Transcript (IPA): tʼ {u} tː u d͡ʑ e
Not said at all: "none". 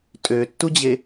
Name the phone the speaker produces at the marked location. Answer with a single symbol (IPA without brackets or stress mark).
ø